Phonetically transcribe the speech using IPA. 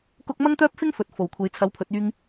k ʊ˥ k̚ m ɐ˥ ŋ t̪ œː˥ p̚ f ɪ˥ ŋ f ɵ˨ t̚ f o˨˩ w kʷʰ e˨ j t͡sʰ ɐ˨˥ w pʰ ɵ˨˥ t̚ yː˧ ŋ

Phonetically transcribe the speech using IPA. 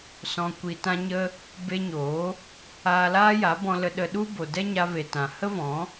s ɔ̃˨ kʷ i˨ t ã˧ ɲ ə˧ | b e˧ ɲ oː˨˦ | aː˧ l aː˦ j a˨˦ b ɔ̃˧ l ə˧ ɗ ə˧ ɗ u˦ b o˨ d ɛ˦ ɲ a˧ v e˨ t ã˨ h ə˦ v ɔ̃˨˦

